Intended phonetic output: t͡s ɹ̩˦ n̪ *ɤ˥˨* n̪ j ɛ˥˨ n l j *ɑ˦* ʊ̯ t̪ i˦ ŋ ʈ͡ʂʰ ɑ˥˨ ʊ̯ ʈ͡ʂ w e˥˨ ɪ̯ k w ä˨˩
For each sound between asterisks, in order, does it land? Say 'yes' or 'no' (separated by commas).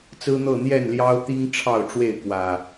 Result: yes, yes